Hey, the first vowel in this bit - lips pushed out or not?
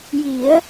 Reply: no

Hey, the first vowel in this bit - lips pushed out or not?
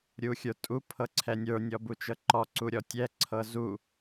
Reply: yes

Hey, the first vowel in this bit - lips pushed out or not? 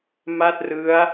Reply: no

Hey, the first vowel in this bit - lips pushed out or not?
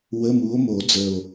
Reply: no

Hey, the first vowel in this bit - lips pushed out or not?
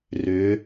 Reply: yes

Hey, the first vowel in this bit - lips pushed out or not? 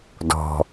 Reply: yes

